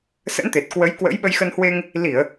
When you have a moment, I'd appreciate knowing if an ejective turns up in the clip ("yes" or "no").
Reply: no